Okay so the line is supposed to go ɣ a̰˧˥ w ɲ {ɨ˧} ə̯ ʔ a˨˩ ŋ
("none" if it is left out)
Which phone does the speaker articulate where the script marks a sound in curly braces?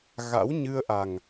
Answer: ɨ˧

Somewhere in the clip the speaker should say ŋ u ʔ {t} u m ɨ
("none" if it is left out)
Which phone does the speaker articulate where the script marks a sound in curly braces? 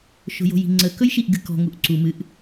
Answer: ǀ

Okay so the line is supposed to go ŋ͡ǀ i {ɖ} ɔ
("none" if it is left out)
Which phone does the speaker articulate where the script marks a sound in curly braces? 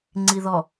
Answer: ð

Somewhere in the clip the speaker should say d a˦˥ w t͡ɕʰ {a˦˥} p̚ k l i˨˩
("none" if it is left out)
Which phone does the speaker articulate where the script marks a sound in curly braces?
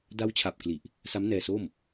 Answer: a˨˩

